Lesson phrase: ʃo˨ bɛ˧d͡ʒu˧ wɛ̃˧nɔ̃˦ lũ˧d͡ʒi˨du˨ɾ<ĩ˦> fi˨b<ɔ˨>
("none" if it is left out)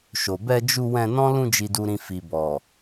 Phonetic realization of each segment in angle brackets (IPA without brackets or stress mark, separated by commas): ĩ˨, ɔ˨